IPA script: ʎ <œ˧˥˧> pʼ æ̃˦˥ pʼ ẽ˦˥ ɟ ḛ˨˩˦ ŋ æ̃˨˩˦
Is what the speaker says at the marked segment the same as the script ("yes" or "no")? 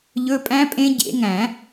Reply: no